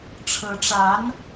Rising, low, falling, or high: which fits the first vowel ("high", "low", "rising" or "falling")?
rising